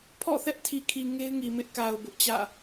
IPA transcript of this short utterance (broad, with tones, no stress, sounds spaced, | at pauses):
pʰ ɔ̰˦˨ θ ɛ˦ ʔ tʰ i˨ kʰ i˨ ŋ e˦ ɪ̯ ŋ i˨ m ɪ˦ ʔ k a˨ ʊ̯ b ʊ˦ ʔ t͡ɕ ä̰˦˨